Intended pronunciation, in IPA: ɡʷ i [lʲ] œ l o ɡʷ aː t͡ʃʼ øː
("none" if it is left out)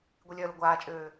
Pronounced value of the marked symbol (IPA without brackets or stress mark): lʲ